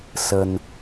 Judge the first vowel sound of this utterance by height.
mid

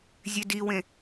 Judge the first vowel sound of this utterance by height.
mid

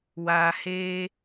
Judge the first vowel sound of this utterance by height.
low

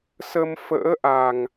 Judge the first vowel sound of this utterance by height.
mid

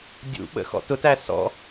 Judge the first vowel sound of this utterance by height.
high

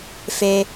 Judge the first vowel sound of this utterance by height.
mid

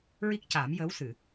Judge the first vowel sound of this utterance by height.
high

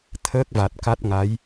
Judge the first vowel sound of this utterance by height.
mid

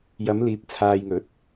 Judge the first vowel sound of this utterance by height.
low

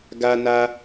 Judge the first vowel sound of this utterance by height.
low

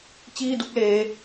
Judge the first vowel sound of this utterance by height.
high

